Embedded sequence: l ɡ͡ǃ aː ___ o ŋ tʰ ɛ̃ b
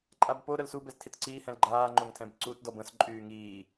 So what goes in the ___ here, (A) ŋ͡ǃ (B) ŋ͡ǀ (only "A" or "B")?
A